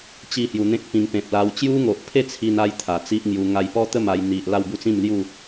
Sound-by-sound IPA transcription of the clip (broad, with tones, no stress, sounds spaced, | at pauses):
t͡ɕ i˥˧ h j u˧ n̪ ẽ˦ k̚ p ĩ˧ ŋ p ẽ˨ p̚ l a˧ w t͡ɕ j u˦ ŋ o˨ ʔ pʰ e˥˧ t͡sʰ i˧ n a˦ j t̪ʰ a˨˩ t͡s i˦ ʔ ŋ j u˧ ŋ a˧ j p ɔ˦ t̪ ə˥˧ m a˧ j n̪ i˨ ʔ l a˥˧ w b u˥˧ t͡s ĩ˥˧ m l j u˥˧